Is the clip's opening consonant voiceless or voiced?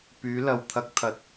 voiceless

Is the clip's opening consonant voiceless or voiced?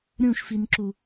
voiced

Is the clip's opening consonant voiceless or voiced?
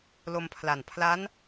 voiced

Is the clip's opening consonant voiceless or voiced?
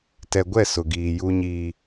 voiceless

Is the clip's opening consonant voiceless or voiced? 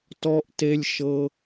voiceless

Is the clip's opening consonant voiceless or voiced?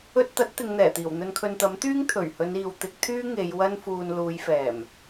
voiceless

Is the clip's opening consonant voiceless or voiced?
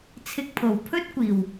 voiceless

